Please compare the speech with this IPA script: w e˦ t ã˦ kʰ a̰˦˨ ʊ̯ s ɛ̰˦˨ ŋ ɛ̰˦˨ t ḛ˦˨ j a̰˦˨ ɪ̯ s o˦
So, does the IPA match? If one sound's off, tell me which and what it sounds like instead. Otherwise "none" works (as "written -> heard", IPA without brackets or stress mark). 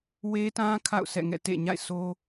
j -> ɲ